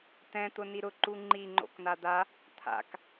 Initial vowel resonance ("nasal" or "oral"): nasal